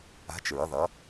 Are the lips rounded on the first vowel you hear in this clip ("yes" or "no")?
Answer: no